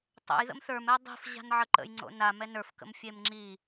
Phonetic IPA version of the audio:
tˤə̰j ðə̰mθə˞mɛ dˤi̤fʑa̤n ʕəǃə̰j ŋ͡ǀo̰na mɛnə˞fkə̰m fʲemŋ͡ǁi

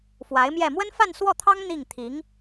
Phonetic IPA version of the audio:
fwa˧˥ɪ̯mjɛ˥˩ mwə˥nfa˥˧nswɔ˥˩t̪ʰɑ˥ŋ n̪i˥˩ŋt̪ʰi˧˥ŋ

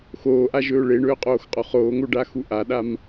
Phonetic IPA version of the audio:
xoːʔaʒɵː ɭeɳɵːqʼoːxqʼo χoːŋoɖaxu ʔaɗam

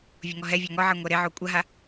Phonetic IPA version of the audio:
vʲoŋɔɦɛvʲa ŋɔʕe ŋʷɛɾeʕo kʷʼaɦa

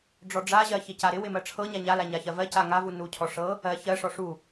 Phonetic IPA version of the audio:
ɖ͡ʐɔɖ͡ʐaʑɜ çɪcaɾɪwɪ mɜʈ͡ʂʰɤɲa ɲala ɲaçɜvɜca ŋavu nucʰɔ ʂɤ | ɜ çɜʂɔ ʂu

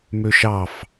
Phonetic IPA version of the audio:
møʃɑf

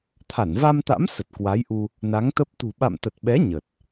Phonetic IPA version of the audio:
t̪ʰa˧˩nva˧mt̪a̰˧˥m sə˨˩t̚kwa˨˦jʔu˧ | na˨˦ŋt̪ə˦˥p̚ t̪ṳ˨˩ɓa̰˧˨mt̪ə˨˩t̚ɓɛ˨˦ ɲə˨˩t̚

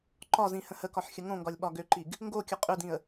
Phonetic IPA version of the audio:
ǃɒzĩ hə̃həkɒħ xʲəŋõŋɡɒlʲ ɓɒɡøǃiɡ | ŋɡokʲə qʼʏdĩə̯

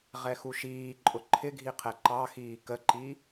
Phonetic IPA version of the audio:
ʁɛxuʃiːǃʼʊ ǃʰɪɡʱi qʰɛǃɑxiː kəǃi

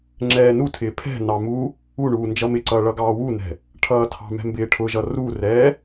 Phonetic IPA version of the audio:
ŋ͡ǁɛːnutʰɪː pʰɛ̤nɑ mu | uɳuː nd͡ʒʌmɪǀʌː ɭʌɡɑːwunɛ̤ | ʈʰʌːtʰɑ̤mɛ̤ mbɪːʈʰʊʒʌ rurɛː

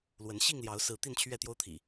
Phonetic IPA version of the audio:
lwə˨˦n ɕi˥˨ŋljɑ˨˦ʊ̯sɹ̩˨˦ t̪i˥˨nt͡ɕʰɥɛ˥˨t̪jo˦ʊ̯t̪ʰḭ˨˩

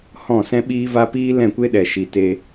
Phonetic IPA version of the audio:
hɔ̃˦˨sɛ̃˦ɓiː˦va˦ piː˦lɛ̃˦˨kʷe˦ɗɛ˨ ʃi˨te˧

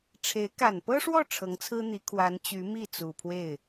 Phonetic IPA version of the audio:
ʈ͡ʂʰe˧˥ɪ̯ ka˨˩npɤ˥ʂwɔ˥˩ ʈ͡ʂʰɤ˧˥ŋt͡sʰɹ̩˥n̪i˧˥ kʰwa˧˥n t͡ɕy˧˥mi˥˩ t͡su˨˩pʰwe˥˩ɪ̯

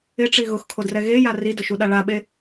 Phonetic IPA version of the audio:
ɪʈ͡ʂi ɣʊxkʰodrɛ ɣeja ridʊʃuɗa ɭaɓe

